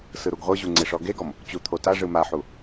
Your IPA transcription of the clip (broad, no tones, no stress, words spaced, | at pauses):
sɯɾuɡʁʷɯʑu ŋ͡ǀeʂɔɡeɡɔm | t͡ɕut̪ʰotaʐɯ maħu